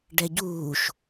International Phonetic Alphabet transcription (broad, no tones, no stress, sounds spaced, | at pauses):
ɖ ɛ ɟ uː ʃ